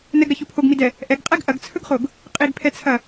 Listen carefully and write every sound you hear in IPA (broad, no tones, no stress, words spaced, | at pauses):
nɛɡɾɐço pʰoɡmidɛ | ʔɛɡqʼɛɡ ʔɐɡt͡sʰɵɡχoɡ | qʼiɡpʰɛt͡sʰɐ